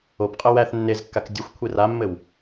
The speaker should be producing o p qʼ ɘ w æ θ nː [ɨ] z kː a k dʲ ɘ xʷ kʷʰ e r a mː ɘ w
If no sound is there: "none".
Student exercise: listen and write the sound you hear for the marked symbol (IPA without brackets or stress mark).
e